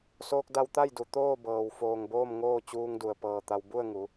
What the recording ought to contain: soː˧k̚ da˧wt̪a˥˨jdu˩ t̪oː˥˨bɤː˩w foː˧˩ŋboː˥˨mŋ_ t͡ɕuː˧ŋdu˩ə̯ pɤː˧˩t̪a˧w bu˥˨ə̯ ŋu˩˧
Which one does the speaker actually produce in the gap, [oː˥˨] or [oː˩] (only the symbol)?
oː˥˨